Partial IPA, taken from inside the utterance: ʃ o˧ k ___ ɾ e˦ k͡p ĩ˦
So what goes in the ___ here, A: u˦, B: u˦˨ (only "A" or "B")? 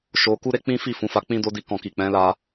A